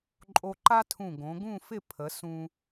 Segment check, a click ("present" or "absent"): present